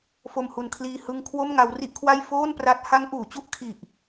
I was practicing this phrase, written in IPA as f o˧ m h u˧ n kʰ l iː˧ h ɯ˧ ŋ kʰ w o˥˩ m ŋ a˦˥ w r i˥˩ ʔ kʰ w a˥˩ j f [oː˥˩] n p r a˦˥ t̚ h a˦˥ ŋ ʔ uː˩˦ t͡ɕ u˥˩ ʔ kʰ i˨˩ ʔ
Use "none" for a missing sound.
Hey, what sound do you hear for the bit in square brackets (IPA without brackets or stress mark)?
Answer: oː˥˩